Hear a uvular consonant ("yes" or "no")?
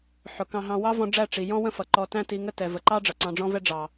no